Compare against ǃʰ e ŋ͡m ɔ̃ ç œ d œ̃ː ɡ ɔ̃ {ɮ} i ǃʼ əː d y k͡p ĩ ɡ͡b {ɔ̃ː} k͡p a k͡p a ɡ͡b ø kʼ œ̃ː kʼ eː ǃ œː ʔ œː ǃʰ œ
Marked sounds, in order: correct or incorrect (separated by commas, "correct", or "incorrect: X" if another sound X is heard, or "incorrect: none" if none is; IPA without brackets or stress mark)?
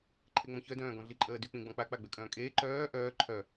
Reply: correct, incorrect: ɔ̃